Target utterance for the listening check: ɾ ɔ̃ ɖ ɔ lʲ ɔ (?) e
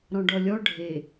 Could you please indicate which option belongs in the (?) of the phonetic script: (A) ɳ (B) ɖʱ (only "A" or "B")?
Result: B